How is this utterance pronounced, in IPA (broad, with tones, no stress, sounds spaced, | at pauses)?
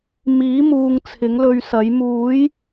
m iː˨˥ m uː˨ ŋ t͡sʰ ɪ˨˥ ŋ l ɵ˧ ɥ s ɐ˨˥ j m uː˨˥ j